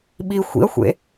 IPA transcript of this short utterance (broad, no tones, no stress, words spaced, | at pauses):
ɓi xʷḭɐ̯xʷḛ